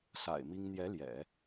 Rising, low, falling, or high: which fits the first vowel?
low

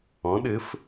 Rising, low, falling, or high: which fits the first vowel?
rising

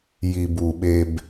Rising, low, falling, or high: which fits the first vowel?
low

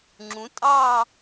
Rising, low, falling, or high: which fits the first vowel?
rising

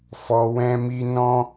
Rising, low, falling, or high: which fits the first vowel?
low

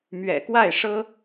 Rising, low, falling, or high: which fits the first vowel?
low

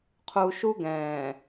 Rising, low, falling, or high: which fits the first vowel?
low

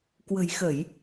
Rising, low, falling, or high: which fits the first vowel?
low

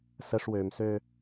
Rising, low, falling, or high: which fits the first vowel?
high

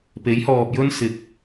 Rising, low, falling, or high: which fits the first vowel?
rising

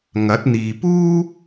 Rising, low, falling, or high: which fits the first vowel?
rising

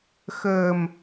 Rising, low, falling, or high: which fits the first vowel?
low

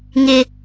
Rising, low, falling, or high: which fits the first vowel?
high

